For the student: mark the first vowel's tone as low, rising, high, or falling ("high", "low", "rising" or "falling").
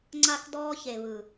high